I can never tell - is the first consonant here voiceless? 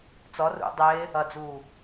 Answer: yes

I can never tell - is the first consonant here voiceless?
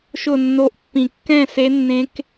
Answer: yes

